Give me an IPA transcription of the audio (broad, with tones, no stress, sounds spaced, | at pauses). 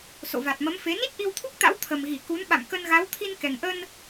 s o̰˧˨ v a˨˩ t̚ m ə˨˦ m f e˨˦ n i˦˥ t̚ ʔ i˧ w t̪ʰ u˦˥ k̚ t̪ a̰˧˥ w t̪ʰ ə˨˩ m ɣ i˧˩ k u˨˦ n ɓ a̰˧˨ m k ə˧ n ɣ a˨˦ w t̪ʰ i˧ n k ɛ˨˩ ŋ ʔ ə˧ n